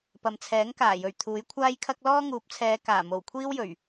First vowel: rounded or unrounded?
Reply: unrounded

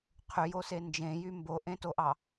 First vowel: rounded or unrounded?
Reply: rounded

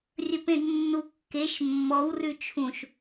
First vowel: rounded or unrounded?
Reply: unrounded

